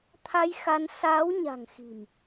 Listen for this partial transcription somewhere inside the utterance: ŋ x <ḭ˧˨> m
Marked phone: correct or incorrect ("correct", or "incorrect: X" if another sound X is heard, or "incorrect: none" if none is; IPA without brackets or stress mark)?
incorrect: i̤˨˩